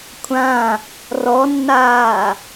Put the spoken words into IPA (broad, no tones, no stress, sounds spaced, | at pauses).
kʷʰ ã | r ɔ nː aː